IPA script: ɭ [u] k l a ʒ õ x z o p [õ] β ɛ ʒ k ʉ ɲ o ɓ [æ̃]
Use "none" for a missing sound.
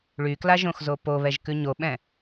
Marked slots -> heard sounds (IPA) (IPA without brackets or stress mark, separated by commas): y, o, ɛ̃